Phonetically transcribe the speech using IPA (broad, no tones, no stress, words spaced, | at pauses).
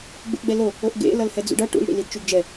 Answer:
ɡ͡bṵʔɡ͡bɛlo | oʔɡḛ lʌlhɛd͡zṵɖʌ ʈṵl ɽḭlidt͡ʃuɡd͡ʒɛ